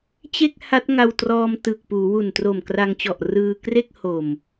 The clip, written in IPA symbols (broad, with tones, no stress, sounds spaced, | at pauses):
t͡ɕ e˥˩ k̚ h a˦˥ t̚ ŋ a˧ w t r ɔː˧ m t ɯ˨˩ k̚ p uː˩˦ w u˨˩ n t r o˨˩ m k r a˧ ŋ t͡ɕ ɔ˨˩ ʔ r ɯː˧ k r e˥˩ k̚ h o˨˩ m